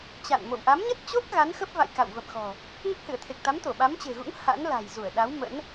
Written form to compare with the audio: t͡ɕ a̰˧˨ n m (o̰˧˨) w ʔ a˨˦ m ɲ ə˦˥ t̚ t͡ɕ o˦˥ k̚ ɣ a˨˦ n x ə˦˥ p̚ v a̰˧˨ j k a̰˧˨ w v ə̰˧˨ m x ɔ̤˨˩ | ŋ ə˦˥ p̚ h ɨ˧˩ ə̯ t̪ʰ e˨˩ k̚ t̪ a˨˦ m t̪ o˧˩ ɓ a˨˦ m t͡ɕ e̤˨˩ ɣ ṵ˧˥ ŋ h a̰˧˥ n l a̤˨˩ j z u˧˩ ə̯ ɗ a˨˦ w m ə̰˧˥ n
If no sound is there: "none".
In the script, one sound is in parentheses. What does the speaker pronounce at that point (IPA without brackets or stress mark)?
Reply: o̰˧˨